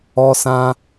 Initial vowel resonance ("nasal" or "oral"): oral